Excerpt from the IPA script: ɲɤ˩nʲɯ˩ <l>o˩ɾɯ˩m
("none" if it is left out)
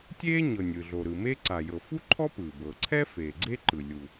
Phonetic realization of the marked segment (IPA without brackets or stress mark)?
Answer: ɮ